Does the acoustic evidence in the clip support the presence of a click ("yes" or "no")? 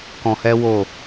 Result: no